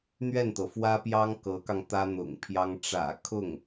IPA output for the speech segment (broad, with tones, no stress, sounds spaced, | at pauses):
n̪ ɥ ɛ˥˩ n t̪ ɤ˩ f w ä˥ p j ɑ˥ ŋ k ɤ˧˥ k ɑ˧ ŋ t̪ ä˥ n̪ ʊ̰˨˩ ŋ pʰ j ɑ˥ ŋ ʈ͡ʂ ä̰˨˩ kʰ ʊ˥˩ ŋ